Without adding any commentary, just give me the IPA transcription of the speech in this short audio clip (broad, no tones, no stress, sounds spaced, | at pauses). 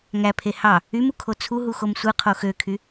ŋ æ pʰ e h ɑ | y m u kʰ o t͡sʰ u ɦ u x o m sʷ ɯ qʰ o x ø kʰ y